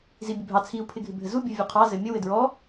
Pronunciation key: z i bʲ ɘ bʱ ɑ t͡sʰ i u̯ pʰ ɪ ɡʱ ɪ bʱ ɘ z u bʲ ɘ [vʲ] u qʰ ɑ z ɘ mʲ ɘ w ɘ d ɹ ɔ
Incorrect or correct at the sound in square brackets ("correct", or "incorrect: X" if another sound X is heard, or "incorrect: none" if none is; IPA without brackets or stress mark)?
correct